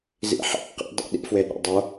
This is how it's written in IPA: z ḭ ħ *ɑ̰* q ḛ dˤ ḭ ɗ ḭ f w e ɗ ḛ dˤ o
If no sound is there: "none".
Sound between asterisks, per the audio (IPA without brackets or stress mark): ɑ̰